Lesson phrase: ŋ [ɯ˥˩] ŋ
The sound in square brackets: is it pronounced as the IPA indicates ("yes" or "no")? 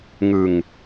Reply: no